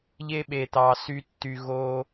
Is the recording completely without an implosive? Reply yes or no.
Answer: no